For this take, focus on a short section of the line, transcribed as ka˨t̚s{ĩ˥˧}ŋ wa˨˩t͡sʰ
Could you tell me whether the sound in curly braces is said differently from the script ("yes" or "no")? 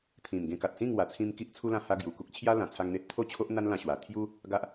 no